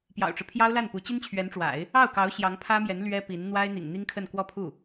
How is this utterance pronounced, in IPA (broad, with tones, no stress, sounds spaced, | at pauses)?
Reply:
p j ɑ̰˨˩ ʊ̯ ʈ͡ʂ ɻ̩˦ pʰ j ɑ˥ ʊ̯ l a˥˩ n p u˧˥ t͡ɕ i˥ n t͡ɕʰ ɥ ɛ˧˥ n ʈ͡ʂ w a̰˨˩˦ ɪ̯ | ɑ˥˩ ʊ̯ k ɑ˧˥ ʊ̯ ɕ j ɑ˧˥ ŋ pʰ ä˥ m j ɛ˧˥ n l ɥ ɛ˥ p i˧˥ n n̪ w a˥ ɪ̯ n̪ ḭ˨˩ ŋ n̪ i˥ ŋ kʰ ə˥˧ n k w ɔ˥˧ pʰ u˥˩